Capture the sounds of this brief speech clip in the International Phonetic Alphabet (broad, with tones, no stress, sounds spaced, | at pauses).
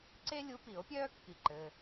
ǀ e˥ lʲ u˧˥ p i˨˩˦ o̯ pʲ œː˥ kː i˥ ǃ ɘː˧˥˧